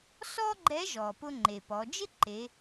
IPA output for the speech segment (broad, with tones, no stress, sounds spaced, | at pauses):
s ɔ˥ ɡ͡ǃ ɛ˧˥ ʒ ɔ˩ p ʊ˧ ŋ͡ǃ e˩ p ɔ˩˧ d͡ʒ ɪ˥ ǃ e˩˧